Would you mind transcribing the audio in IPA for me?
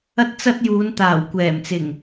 ɐ˥ t̚ t͡s ɐ˥ t̚ j uː˨˧ n t̪ aː˨˩ w kʷ ɛː˨˩ m t͡s ɪ˨˩ ŋ

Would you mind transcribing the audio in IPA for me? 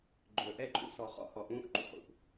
ɡ͡ǃ ɵː˨ ʔ ɛ˦˨ ǃʼ ṵ˦ s ɔ˨ χ ɔ̰˦ h ɔ˨ ʔ ũː˧ ʔ ǃ ṵ˨ χ ṵ˨ ʔ

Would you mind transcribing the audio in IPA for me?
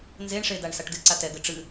n z e ɳ ʂ e d a ɳ s a ʈ d ɨ ǀ a t ɛ ɡ ɘ ʈ͡ʂ ɨ

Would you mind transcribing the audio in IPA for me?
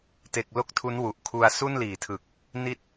t e˨˩ k̚ l o˥˩ k̚ tʰ u˦˥ n w u˨˩ ʔ kʰ u˧ a̯ s u˥˩ n l iː˩˦ tʰ ɯ˨˩ k̚ | n i˥˩ t̚

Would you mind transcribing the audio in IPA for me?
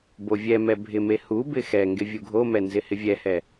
b o vʲ ɛ m ɛ bʱ ɪ m e h u b ɪ x ɛ ŋ ɡ ɪ vʲ u ɡʱ o m ɛ n z ɪ h ɪ vʲ ɛ h ɛ

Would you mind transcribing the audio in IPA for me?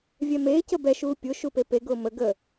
vʲ ɛ m eː c ə b ɛ ʃ uː pʲ ʊ ʃ u p e p e ɡ ʊː m ə ɡ ə

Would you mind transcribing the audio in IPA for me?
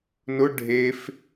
n ʊ ɖʱ e f

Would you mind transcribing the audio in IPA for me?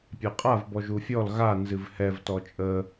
pʲ a qʼ a v b ɔ ʒ u fʲ ɔ l ɣ a n z ɨ v h ɛ v t ɔ t͡ʃʼ ə

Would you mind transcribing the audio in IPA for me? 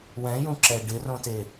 w ɛ̃ j ũ ǁ ɛ ɖ ɪ r õ t e

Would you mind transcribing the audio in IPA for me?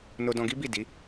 n o˧ d ɔ̃˧ ɡ i˦ b i˦˨ d i˨˦

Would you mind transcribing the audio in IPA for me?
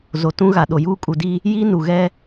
z o˨ t ũ˦ ɣ a˨ ɗ o˨ j uː˦ kʼ u˨ d i˦ | j iː˦ n u˨ ɣ ɛ˦

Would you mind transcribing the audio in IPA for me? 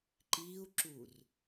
ǃ iː u̯ ǁ uː r

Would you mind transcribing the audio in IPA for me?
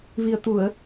v i˨˩ ə̯ t̪ u˨˩˨ ə̯

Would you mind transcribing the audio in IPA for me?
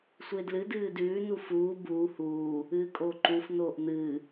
sʷ ɨ e̯ d l ɨ d ɨː d ʉː n u f uː b uː h uː | ɨː kʼ oː ǃ u f n oː ʔ n̪ ɨː

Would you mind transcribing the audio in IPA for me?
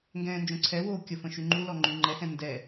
ŋ ɡ ɛ̃ː n d͡ʒ õ ǀʰ ɛ w oː kʲ ə f ə̃ ʃ y ŋ͡ǃ u l ɔ ŋ͡ǃ y ŋ͡ǃ ɛ h ɛ̃ n d ɛ

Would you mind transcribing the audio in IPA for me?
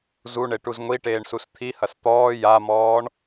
z u ɳ e ʈ u z ŋʷ i ʈ eː ɳ s u s t̪ʰ i h ɐ s t̪ ɔː j a m ɔː ɳ

